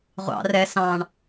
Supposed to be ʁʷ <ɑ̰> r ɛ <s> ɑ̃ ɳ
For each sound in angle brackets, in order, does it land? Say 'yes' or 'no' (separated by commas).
yes, yes